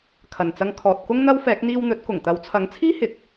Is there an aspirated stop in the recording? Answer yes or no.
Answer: yes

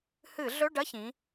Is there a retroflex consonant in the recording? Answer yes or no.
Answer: yes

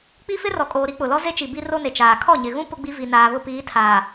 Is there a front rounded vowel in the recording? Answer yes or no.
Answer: no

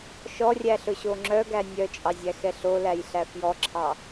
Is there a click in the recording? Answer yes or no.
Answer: yes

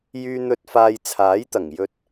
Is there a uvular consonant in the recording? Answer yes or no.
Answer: no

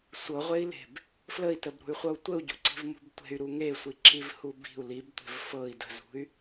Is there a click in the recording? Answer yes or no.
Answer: yes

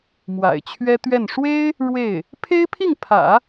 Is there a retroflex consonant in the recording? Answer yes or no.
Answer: yes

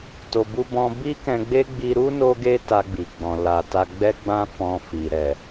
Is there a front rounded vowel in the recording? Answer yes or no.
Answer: no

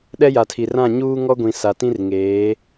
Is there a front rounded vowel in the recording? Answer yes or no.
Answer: no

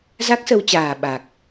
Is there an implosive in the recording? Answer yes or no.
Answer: yes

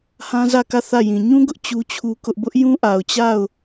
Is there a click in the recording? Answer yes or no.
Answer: no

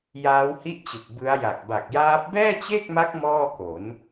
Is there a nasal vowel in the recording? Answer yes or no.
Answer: no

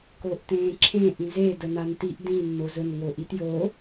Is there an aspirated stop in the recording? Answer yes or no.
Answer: yes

